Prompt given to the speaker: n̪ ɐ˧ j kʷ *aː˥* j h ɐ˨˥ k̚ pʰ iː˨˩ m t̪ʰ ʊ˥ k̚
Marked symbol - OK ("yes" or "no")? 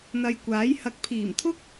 no